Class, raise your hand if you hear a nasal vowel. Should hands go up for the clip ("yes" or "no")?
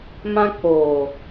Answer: yes